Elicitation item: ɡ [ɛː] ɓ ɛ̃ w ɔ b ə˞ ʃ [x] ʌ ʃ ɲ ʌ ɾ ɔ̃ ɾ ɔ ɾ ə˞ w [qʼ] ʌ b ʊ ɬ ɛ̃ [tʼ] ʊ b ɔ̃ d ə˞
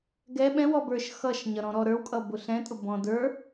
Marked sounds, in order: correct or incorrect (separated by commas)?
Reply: incorrect, correct, incorrect, correct